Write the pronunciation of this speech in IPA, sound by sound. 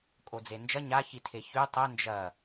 kʼ o d͡z e n d͡ʒ ɐ ɲ a ç i tʰ e ç ʉ tˤ ɵ n d͡ʒ ɐ

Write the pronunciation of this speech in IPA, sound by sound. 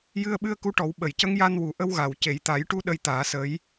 j ɨ˧ ə̯ ɓ ɨ˧ ə̯ k u˧˥ ʈ ɔ˨˩˦ w ɓ ə˨˩˨ j c ə˧˥ ŋ j a˧ n w u˨˩˨ ʔ ə˧ w ɣ a˨˩ w c e˨˩˨ j t̪ a˨˩˦ j ʈ u˧ ɗ ə˧ j t̪ aː˨˩˦ s ə˧˥ j

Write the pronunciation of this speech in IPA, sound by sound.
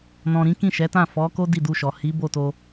n ɔ̃˨ ɾ ĩ˨˦ k ĩ˦˨ ʃ ɛ˨˦ t ã˦˨ f ɔ˨˦ k o˦ d i˦˨ d u˧ ʃ ɔ˨ h i˨˦ b o˦˨ t o˧

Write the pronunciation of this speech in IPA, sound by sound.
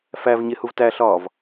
f æ v ɲ e h u v t æ ɬ ɒː v

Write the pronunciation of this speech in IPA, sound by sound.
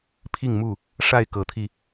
pʰ i˥˨ ŋ m u˥˨ | ʂ a˥˨ ɪ̯ k ɤ˨˦ t̪ʰ i˧

